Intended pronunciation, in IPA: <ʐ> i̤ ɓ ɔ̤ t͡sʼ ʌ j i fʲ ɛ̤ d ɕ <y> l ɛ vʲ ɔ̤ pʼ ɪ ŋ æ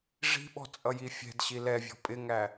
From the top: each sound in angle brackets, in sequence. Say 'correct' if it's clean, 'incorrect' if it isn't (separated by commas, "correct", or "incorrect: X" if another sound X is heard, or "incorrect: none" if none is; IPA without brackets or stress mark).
correct, incorrect: i